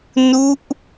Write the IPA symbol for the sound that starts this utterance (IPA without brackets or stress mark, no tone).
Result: n